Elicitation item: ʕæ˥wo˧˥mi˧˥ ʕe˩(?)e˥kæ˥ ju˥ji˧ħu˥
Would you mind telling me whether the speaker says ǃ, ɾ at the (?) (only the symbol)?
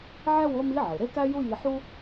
ɾ